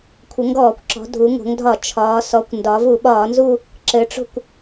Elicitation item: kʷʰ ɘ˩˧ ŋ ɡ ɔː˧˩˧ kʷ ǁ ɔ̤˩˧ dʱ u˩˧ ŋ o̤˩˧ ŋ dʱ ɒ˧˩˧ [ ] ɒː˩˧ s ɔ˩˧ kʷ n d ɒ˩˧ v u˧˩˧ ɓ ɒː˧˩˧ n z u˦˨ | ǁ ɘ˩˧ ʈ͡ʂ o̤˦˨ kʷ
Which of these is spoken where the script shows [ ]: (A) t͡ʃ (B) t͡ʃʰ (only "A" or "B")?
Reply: B